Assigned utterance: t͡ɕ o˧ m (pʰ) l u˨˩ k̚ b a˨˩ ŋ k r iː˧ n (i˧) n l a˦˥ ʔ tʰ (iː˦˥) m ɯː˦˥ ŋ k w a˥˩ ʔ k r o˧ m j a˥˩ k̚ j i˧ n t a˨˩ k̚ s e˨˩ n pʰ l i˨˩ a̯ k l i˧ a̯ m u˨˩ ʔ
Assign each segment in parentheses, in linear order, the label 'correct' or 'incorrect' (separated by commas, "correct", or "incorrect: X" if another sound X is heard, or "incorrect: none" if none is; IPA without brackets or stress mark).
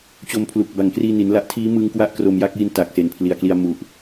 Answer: correct, incorrect: i˩˦, correct